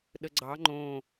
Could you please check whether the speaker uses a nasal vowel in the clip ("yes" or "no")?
yes